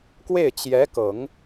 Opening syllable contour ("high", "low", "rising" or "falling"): falling